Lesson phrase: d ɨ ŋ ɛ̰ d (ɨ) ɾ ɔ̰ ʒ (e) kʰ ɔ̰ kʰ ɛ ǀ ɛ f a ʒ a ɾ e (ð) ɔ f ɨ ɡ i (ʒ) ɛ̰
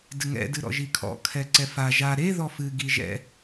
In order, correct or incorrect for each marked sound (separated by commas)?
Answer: correct, incorrect, correct, correct